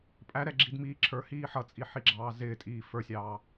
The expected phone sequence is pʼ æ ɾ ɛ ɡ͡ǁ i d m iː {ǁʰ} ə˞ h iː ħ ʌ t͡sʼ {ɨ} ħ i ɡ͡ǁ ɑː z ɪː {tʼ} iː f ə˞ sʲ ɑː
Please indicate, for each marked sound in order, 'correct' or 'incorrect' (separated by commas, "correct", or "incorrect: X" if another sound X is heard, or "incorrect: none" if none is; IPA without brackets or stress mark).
correct, incorrect: i, correct